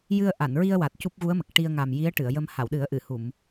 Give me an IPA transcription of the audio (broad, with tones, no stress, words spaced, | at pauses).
jɨ˧ə̯ʔa˨˩˨nɹi˧ə̯ wa˨˩t̚cu˦˥p̚ɣu˧˥ə̯mə˨˩k̚ ʈi˧ə̯ŋa˨˩mji˧˥ə̯ ʈɨ˨˩˨ə̯jə˧m ha˨˩˨wɗɨ˨˩˦ə̯ʔɨ˨˩˨ hu˨˩˨m